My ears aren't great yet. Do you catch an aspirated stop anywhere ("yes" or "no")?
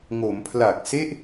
yes